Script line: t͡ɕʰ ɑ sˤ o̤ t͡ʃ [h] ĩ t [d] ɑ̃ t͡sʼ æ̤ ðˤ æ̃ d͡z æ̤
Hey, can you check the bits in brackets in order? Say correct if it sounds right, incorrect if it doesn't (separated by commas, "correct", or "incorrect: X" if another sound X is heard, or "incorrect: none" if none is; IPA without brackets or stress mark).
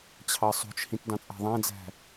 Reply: correct, correct